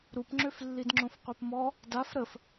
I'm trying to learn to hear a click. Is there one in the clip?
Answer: yes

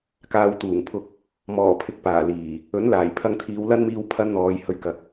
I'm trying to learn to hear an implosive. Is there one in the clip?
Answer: no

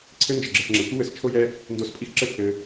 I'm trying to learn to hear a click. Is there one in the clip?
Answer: yes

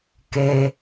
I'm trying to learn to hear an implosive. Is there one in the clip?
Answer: no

